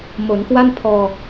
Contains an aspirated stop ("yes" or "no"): yes